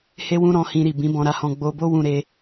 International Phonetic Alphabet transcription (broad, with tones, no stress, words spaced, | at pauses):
he˦wũ˦ ɾɔ̃˦hĩ˦ɾi˦˨ bĩ˨˦bɔ̃˧ɾa˧hɔ̃˧ ɡ͡bo˧bo˦wũ˧ ɾe˧